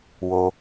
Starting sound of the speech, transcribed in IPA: w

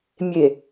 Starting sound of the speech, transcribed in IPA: mʲ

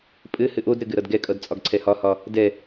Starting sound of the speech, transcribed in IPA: pʼ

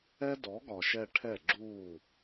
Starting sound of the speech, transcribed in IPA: ɛ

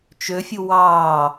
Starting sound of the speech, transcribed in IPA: t͡ʃ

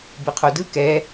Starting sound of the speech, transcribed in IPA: b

